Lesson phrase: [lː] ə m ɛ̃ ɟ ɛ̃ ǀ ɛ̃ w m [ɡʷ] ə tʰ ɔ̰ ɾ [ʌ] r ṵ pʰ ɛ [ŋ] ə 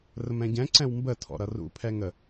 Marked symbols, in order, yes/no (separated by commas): no, no, yes, yes